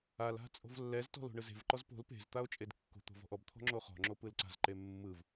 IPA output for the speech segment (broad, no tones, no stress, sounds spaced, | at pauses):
a l a̤ t͡sʼ o̤ v lː ɛ z t ɔ̤ l o̤ ɳ ɯ z e̤ v ǃ ɔ z p o̤ l p e̤ z t̪ a o̯ t͡ʃʼ e d kː o̤ t̪ o̤ v ɔ̤ ʔ ɔ b t̪ʰ ɔ̤ ŋ͡ǁ o χ ɔ̤ ŋ͡ǁ o p ɯ l ǀ a̤ z ǃ e mː ɯ v